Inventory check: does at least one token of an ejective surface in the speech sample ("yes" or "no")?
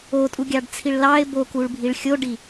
yes